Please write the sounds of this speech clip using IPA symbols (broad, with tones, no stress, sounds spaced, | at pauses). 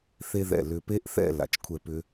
θ e˥ ð ɛ̰˧˩ l ʏ˧ p e˥ ʔ θ ɛ̰˥˧ l a̰˩˧ t͡ʃ kʷʰ ɛ˥˧ p ʏ˥